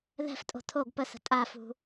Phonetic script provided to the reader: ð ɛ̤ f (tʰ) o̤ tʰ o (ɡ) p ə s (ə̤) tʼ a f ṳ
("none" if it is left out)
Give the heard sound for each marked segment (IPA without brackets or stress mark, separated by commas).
tʼ, ɡ, ə̤